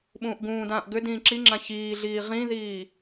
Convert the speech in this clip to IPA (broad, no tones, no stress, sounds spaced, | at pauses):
ɓ ũː ʔ ɡ ũː d ãː ʔ ɡ ʏ d ĩː ǁ i ŋ͡ǁ ã ç iː ɮ iː ʁ ĩ ð iː